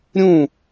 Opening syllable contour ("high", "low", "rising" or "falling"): falling